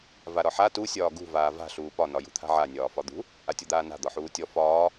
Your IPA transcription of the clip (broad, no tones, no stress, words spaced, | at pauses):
vaɾɒħa tu sʲɒːɡṳ vaːva̤ ɬuːpɒ nɒjṳt̪ʰa̤ʕa nʲɒːfɒd̪ṳ | ʔatʲɔd̪aːna̤ d̪ɒħuːtʲɔ fɒː